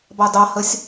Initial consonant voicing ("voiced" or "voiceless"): voiced